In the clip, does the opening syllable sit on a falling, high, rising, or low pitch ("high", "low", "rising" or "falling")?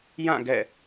falling